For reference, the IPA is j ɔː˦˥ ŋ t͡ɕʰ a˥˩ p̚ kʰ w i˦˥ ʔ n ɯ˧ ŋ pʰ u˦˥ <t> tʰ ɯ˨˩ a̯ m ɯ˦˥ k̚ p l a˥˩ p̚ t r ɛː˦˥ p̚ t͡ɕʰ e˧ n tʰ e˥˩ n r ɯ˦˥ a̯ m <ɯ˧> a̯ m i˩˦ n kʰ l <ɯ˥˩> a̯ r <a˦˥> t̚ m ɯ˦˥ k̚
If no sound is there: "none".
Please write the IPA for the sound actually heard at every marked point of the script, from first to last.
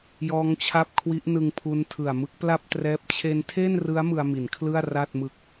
n, ɯ˧, ɯ˥˩, a˥˩

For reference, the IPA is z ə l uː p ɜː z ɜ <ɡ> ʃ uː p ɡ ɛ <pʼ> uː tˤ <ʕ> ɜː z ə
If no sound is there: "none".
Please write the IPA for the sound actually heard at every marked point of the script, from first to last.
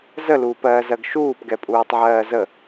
ɡ, pʼ, ʕ

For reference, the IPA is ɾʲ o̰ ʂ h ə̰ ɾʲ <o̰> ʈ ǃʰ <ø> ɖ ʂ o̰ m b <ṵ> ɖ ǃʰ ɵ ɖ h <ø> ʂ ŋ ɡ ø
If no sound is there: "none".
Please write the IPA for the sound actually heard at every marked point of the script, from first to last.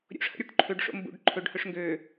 o, ø, ṵ, ɵ

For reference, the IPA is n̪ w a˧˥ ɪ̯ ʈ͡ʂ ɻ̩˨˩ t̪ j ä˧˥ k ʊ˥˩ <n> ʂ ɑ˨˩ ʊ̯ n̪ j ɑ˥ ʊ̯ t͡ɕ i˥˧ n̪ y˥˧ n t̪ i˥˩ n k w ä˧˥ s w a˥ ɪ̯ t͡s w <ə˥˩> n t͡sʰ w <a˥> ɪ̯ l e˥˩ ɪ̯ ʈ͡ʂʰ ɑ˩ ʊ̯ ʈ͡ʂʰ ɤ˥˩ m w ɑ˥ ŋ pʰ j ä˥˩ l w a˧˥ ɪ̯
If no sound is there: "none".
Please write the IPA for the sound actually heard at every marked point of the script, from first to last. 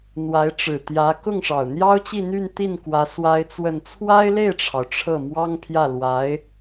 ŋ, ə˥˩, a˥

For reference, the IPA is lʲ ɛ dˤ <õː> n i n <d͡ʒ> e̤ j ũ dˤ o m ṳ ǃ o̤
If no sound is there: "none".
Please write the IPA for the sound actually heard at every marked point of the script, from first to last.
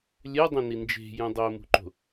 õ, d͡ʒ

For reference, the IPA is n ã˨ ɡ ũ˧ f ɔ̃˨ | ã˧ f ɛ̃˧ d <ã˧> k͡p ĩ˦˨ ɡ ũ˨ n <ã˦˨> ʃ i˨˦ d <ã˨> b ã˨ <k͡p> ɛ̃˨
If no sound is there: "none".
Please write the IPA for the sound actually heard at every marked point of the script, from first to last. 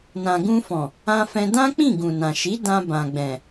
ã˦, ã˨, ã˧, ɡ͡b

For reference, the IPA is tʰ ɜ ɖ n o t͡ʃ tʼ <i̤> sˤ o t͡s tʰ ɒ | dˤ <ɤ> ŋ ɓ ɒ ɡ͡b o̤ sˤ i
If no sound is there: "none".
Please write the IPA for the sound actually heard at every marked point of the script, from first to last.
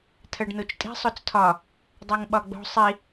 i̤, ɤ

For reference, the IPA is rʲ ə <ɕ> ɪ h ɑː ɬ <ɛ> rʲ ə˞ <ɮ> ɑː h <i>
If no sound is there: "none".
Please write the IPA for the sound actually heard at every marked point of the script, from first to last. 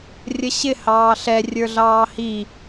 ɕ, ɛ, ɮ, i

